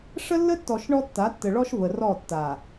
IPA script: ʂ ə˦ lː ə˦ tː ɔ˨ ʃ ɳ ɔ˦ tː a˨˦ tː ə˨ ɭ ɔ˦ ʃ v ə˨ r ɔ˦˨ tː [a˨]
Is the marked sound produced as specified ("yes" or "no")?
yes